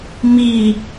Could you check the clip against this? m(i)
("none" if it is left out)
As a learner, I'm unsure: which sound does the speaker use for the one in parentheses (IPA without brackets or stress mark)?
i